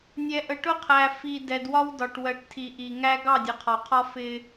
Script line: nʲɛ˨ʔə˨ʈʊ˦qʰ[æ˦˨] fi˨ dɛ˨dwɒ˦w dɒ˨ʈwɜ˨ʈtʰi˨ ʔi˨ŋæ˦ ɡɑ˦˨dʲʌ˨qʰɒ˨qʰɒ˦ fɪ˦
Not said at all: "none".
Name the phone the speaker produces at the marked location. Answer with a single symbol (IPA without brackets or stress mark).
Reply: æ˨